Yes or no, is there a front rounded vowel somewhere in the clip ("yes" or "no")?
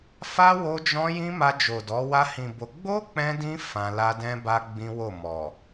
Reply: no